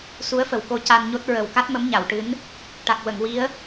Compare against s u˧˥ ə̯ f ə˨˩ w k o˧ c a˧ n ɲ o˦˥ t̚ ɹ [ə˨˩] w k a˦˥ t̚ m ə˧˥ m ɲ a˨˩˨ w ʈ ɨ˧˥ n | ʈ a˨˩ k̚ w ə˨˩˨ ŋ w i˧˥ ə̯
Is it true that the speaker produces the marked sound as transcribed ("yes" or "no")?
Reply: yes